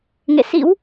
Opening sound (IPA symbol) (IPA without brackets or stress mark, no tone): ŋ